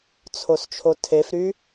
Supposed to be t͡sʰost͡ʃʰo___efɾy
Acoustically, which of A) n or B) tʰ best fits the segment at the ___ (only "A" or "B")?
B